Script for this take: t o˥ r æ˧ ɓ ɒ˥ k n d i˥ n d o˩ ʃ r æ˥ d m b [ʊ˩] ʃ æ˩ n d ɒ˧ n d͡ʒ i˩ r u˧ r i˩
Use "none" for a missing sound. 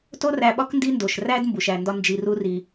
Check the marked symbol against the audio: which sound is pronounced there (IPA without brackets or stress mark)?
u˩